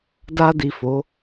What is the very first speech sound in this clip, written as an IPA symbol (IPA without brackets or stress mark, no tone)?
d